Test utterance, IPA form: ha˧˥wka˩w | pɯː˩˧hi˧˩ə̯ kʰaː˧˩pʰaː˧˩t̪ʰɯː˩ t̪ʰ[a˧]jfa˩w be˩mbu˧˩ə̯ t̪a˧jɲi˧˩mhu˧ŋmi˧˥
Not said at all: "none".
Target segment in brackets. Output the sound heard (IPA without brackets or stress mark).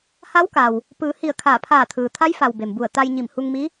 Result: a˧˥